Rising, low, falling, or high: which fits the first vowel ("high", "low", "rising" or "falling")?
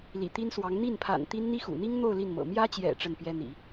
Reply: low